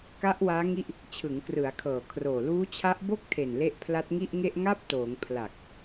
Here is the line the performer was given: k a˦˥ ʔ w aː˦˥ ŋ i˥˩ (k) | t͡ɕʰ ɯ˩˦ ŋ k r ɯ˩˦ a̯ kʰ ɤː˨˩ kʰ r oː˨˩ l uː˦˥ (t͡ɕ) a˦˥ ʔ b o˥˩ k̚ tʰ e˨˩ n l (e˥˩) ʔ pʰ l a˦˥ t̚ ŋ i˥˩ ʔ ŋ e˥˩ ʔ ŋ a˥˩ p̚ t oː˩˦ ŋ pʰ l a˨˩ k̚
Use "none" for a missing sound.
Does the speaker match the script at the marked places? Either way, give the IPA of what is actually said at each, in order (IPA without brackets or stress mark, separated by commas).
ʔ, t͡ɕʰ, e˦˥